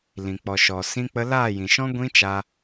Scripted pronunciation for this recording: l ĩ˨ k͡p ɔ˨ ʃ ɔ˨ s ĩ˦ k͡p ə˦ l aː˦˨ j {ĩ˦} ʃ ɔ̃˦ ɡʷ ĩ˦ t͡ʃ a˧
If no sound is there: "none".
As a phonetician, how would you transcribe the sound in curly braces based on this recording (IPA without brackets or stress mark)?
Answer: ĩ˨